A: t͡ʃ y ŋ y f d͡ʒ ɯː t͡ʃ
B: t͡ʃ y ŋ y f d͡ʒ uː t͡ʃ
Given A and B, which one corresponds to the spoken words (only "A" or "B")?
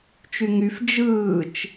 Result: A